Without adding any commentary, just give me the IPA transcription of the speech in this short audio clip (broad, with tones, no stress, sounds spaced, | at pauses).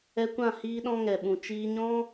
ɛ˧ kʷ ã˦˨ h iː˦ ɗ ɔ̃˦ ŋ ɛ˨ ɓ ũ˨ t͡ʃ iː˦ ɲ ɔ̃˦